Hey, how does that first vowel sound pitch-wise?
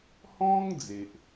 high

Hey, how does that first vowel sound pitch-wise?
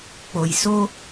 low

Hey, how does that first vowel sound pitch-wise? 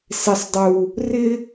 low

